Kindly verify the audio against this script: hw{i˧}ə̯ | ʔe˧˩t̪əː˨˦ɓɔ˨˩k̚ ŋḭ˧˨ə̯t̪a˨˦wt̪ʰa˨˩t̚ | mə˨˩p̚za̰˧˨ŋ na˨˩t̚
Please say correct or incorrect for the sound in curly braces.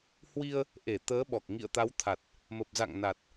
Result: correct